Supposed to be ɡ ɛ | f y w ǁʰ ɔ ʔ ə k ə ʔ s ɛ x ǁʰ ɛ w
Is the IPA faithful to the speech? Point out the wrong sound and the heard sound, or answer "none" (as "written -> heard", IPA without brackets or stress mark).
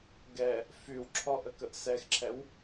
none